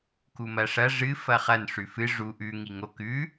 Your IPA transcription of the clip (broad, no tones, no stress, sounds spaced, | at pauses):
k u m ɐ ʂ ɐ ʐ ɨ f ɐ χ ɐ n ʂ ʉ f ɨ ʐ u ʔ ʉ ŋ i ŋ o k ʉ